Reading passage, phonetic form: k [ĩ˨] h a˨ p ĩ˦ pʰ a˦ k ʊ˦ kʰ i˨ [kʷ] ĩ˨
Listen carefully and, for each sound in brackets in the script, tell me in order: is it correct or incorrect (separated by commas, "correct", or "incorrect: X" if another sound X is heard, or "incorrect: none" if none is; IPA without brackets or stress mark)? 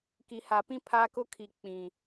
incorrect: i˨, incorrect: k͡p